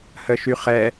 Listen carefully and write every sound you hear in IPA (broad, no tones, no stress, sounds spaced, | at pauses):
h ə ʃ y χ ɛ